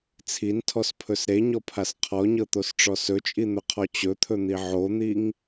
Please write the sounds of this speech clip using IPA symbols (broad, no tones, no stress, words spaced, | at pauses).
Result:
t͡sʰintʰɔspʰɵs ɾeɲɔpʰas qʰɔɲɤt̪osʈ͡ʂɔ sɵt͡ʃʼin̪ɵqʰɔ t͡ɕɵt̪ʰɵn̪i ʕon̪iŋ